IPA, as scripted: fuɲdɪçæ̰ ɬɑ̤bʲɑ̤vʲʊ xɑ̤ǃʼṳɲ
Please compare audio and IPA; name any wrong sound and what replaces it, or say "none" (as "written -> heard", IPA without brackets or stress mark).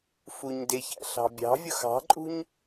none